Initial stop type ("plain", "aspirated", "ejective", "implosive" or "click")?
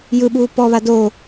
implosive